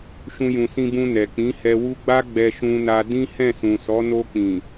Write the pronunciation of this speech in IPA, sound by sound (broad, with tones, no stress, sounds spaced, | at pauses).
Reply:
ʃ ũ˧ j ũ˨ s ĩ˧ b ũ˧ n ɛ˨ k͡p ĩ˨˦ h ɛ˧ w u˦ ɡ͡b a˦ ɡ͡b ɛ˧ ʃ ũ˧ n a˧ d ĩ˦ h ɛ̃˦˨ s ũ˨ s ɔ˨˦ n o˧ k͡p ĩ˨